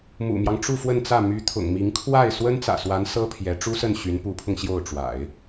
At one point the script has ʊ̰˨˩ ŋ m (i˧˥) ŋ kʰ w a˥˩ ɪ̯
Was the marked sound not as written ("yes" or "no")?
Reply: no